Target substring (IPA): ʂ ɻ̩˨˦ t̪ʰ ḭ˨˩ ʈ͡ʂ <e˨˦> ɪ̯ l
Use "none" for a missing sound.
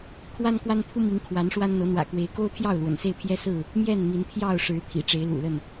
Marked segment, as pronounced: e˨˦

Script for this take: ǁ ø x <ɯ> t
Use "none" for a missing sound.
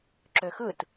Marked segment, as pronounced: ɯ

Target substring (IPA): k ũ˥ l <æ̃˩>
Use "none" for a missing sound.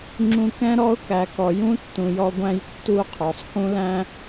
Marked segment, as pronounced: æ̃˥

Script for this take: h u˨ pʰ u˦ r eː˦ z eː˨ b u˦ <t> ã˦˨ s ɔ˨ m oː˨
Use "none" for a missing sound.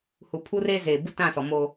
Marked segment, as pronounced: t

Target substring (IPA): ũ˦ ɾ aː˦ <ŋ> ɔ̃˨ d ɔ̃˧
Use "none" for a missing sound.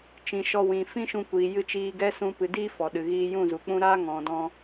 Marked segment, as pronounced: ŋ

